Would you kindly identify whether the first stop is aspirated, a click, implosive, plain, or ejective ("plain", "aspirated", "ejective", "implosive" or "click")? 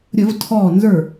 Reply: aspirated